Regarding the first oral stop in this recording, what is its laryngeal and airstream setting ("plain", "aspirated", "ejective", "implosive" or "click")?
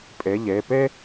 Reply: ejective